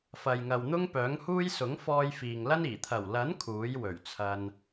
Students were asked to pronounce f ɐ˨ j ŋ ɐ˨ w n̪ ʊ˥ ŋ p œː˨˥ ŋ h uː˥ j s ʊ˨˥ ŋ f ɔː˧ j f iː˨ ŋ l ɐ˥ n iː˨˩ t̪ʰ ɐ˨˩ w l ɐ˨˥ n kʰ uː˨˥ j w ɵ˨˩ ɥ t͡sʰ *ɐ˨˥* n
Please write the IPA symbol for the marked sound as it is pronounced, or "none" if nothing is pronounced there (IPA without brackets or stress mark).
ɐ˧